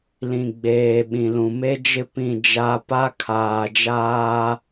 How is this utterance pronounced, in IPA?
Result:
lĩ˨ ɡ͡beː˨ ɓĩ˨lũ˨ me˦d͡ʒɪ˦ pĩ˦˨d͡ʒa˦ pa˦kʰaː˨d͡ʒaː˦

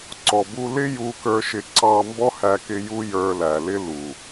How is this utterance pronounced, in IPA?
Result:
ǀɔ˨bu˧lɪ˦ ju˧kə˞˧ʃɪ˧ ǀɑ˧ mbɔ˦hæ˧kɪ˧ ju˦ jə˞˧læ˨lɪ˦ lu˨

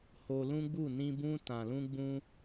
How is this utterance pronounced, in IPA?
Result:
ho˧lũ˦ɡ͡bu˦˨ nĩ˧ bũ˧ tã˨lũ˧ɡ͡bũ˧

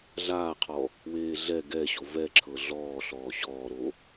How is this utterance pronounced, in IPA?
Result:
ɮaːqʰɔ | weːɮɛ ɡɛɕo vɛǁʰɤ ɮɔː ɬɔːɕɔːɾo

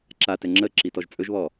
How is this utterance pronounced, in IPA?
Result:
ǁatɛ ŋ͡ǁə ǁitɔʒt͡sʼɵʒβɔ

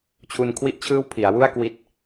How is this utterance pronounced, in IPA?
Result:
t͡ɕʰu˧nkʰwi˥˩ʔt͡ɕʰɯː˥˩w pʰi˩˦a̯wu˥˩a̯kwi˦˥t̚

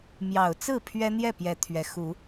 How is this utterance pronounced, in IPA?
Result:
mjɑ˨˩ʊ̯t͡sɹ̩˥˨ pʰɥɛ˦n̪jɛ˥˨pjɛ˨˦ t̪ʰɥɛ˨˩xu˨˦

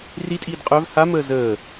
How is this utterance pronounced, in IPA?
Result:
ritʼiːd qʼœv ha məːzəː

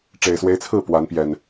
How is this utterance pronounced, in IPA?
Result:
ʈ͡ʂe˨˩ɪ̯swe˦ɪ̯t͡sʰɹ̩˥˨ pwa˨˦npjɛ˨˩n

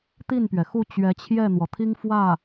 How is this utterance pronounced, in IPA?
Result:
t̪i˥˩npɥɛ˩xu˥˩ t͡ɕɥɛ˧˥t͡ɕʰjɛ˥˩n̪wɔ˩t̪ʰi˥ŋ fwä˥˩

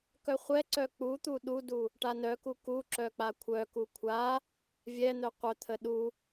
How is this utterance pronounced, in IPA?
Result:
kœχʷɛǀœ k͡put̪u ɗudu | ʈanœku kuǁœ k͡pakʷʰœku kʷʰa | vʲɛn̪œ qʷœt̪ʰə ɗu

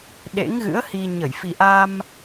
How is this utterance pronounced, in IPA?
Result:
ɗḛ˧˥ŋɣɨ̰˧˥ə̯hi˧ ɲə˧˩j fi˨˩ʔa˧m

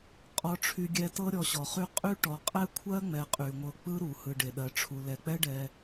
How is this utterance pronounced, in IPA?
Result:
qʼɔ˧ʈ͡ʂʰy˧ɡʲɛ˧ tɤ˦ ɾʲɔ˧ɕɔ˨χy˦ qʼy˦ ʈɔ˨qʼɛ˦kʷʰɜ˦ŋ͡mɛ˨ qʼy˨ŋʷɤ˧k͡pɯ˦ɾu˨ hɯ˨ɖe˨ɗɜ˨ʈ͡ʂʰu˨ lɛ˨k͡pɛ˦ɖɛ˧

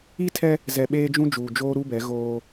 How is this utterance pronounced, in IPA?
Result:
i˦tʰɛ˦ | zɛ˨ɓeː˦ d͡ʒũ˦d͡ʒuː˨d͡ʒoː˦ ɾu˦bɛ˨˦ ɣoː˦

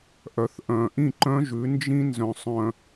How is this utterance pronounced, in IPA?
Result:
ʔœ˨θʔœ̃˨ ʔĩ˦˨ǃœ̃˦ʒʉ˨˦ nd͡ʒĩ˦nzœ̃˨ sˤœ̃˨

